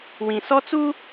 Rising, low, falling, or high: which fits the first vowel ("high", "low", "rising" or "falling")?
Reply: low